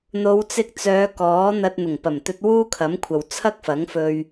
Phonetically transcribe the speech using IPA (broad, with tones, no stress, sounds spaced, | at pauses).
n̪ o˨˧ w t͡s ɪ˧ k̚ t͡s œː˨˧ k ɔː˨˥ n̪ ɐ˧ t̚ n̪ ʊ˨˩ ŋ p ɐ˨˩ m t̪ ɵ˧ t̚ w uː˥ kʰ ɐ˨˥ m kʷʰ ɐ˨ w t͡sʰ ɐ˥ k̚ f ɐ˨˥ ŋ f ɵ˧ ɥ